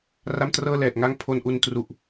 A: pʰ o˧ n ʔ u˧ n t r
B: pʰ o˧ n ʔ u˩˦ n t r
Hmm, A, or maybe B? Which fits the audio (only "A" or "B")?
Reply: A